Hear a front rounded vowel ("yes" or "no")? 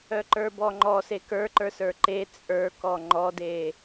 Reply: yes